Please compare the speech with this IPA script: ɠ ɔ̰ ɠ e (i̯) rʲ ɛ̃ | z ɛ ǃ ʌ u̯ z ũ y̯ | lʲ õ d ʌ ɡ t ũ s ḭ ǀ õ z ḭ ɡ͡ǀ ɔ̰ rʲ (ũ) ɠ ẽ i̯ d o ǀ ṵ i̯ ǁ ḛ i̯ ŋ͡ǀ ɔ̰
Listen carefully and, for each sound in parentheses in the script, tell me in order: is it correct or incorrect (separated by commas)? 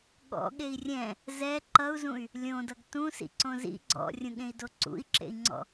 correct, correct